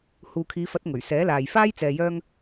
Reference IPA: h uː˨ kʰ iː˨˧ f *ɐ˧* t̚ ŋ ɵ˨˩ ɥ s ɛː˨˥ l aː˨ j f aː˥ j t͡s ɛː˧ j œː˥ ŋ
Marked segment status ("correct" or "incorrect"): incorrect